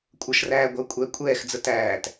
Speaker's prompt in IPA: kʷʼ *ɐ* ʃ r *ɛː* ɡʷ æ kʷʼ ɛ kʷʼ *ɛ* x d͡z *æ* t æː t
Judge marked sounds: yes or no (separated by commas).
no, no, no, no